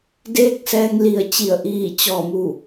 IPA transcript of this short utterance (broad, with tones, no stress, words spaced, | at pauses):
deː˧˥k̚sɛː˧ŋli˧˩ə̯t͡ɕi˧˩ə̯ ʔiː˧˩t͡ɕɔː˧˩mu˧˩